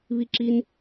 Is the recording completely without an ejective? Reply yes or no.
yes